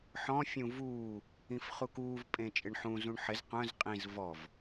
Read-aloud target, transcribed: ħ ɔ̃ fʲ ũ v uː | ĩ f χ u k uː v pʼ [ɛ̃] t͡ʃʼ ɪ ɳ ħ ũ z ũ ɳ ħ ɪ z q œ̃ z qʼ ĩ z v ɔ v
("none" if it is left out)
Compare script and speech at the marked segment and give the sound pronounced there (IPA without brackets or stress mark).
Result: ẽ